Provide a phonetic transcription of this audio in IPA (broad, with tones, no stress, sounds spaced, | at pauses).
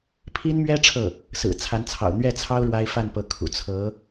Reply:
pʰ i˥ n m ɥ ɛ˥ ʈ͡ʂʰ ɤ˥˩ | s ɹ̩˨˩ t͡sʰ a˧˥ n t͡sʰ ɑ̰˨˩ ʊ̯ n̪ ɥ ɛ˥˩ t͡sʰ ɑ˥ ʊ̯ ɻ w a˥ ɪ̯ f a˥˩ n p ɤ˧˥ kʰ ṵ˨˩ t͡sʰ ɤ˧˥